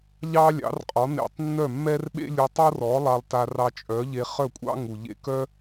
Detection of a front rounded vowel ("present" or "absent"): present